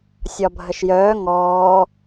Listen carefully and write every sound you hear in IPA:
sʲ ɒ bʱ ə ʃ j œː ŋ ɔː

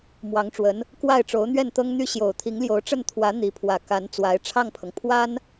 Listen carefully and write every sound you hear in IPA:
m w ɑ˧˥ ŋ ʈ͡ʂ w ə˧˥ n | k w a˥˩ ɪ̯ ʈ͡ʂ o˧˥ ʊ̯ n̪ ɥ ɛ˥˩ n t̪ ɤ˥ ŋ n̪ y˥ ɕ j o˨˩ ʊ̯ t̪ʰ i˧˥ ŋ l j o˧˥ ʊ̯ ʈ͡ʂ ə˥˩ n t̪ʰ w ä˧˥ n̪ i˧˥ pʰ w ä˨˩ k a˧˥ n t͡s w a˧˥ ɪ̯ ʈ͡ʂʰ ɑ˥˩ ŋ pʰ ɤ˩ ŋ pʰ w a˥ n

